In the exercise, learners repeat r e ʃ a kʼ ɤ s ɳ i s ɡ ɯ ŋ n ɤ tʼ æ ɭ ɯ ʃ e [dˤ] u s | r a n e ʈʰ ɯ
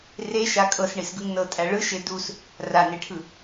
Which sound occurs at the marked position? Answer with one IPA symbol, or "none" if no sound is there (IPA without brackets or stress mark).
d